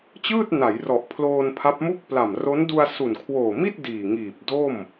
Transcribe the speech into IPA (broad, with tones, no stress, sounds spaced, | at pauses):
t͡ɕ ɯː˥˩ t̚ n a˩˦ j r ɔ˨˩ ʔ pʰ l oː˧ n pʰ a˦˥ p̚ m u˥˩ k̚ p l a˨˩ m r o˦˥ n d u˧ a̯ s u˨˩ n kʰ w oː˨˩ m i˥˩ t̚ d iː˨˩ ŋ iː˨˩ p̚ d o˥˩ m